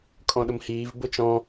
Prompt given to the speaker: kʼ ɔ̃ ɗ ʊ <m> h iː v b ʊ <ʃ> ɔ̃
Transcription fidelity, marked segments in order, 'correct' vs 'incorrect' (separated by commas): correct, incorrect